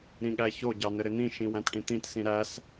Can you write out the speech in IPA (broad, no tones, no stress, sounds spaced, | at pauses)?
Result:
ɾ ĩ ɠ æ ç o ɟ ɑ n ɘ ɾ ɪ n̪ ĩ ʃ ĩ w æ̃ t ʈ ĩ t̪ ĩ t s ĩ ɾ æ s